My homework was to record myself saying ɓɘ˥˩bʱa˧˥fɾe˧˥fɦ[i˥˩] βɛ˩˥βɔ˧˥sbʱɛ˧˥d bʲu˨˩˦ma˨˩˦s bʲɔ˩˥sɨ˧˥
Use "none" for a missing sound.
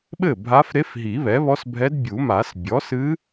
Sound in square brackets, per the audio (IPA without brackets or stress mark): i˨˩˦